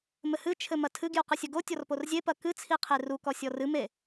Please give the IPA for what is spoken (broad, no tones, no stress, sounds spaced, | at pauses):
m ɘ h ɨ t͡ʃʰ ɘ m ɐ tʰ ɨ ɡ j u q ɨ sʲ ɐ ɡ o tʲ ɔ r p o r zʲ e p ɐ k ɨ t͡sʰ i qʰ e r u k ɔ sʲ ɔ r ɨ m e